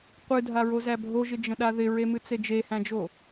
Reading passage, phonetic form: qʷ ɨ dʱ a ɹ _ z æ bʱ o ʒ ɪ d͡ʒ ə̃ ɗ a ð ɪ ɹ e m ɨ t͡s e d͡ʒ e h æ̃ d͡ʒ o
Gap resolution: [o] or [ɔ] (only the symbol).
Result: o